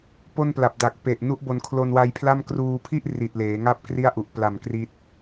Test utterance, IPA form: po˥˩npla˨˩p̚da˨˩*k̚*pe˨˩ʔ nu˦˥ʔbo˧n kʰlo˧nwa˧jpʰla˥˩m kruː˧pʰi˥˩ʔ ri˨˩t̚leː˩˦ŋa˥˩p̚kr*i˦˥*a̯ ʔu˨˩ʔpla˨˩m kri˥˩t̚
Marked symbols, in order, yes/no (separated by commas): yes, no